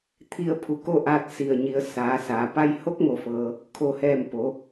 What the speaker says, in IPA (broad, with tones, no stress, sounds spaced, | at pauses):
t̪ʰ i˧ ə̯ pʰ u˧˩ k o˥˨ ʔ aː˧ t̚ s i˧˩ ə̯ ɲ i˩˧ ə̯ s aː˩˧ s aː˩ p a˧ j h o˧˥ k̚ ŋ o˧˩ f ɤː˩ | kʰ o˧˩ h ɛː˧˩ m p o˩˧